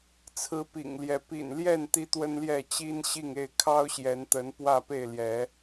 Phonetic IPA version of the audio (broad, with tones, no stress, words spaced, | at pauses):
t͡sʰɹ̩˨˦ pḭ˨˩ŋljɛ˨˦ pḭ˨˩nljɛ˥˨n t̪i˦t̪wə˦nljɛ˥˨ t͡ɕi˦nɕi˥˨ŋe˥˨ɪ̯ kʰɑ˦ʊ̯ɕjɛ˨˦nt̪ə˨˦n pwä˥˨pe˥˨ɪ̯ljɛ˨˦